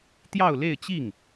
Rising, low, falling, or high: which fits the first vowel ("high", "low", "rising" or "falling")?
falling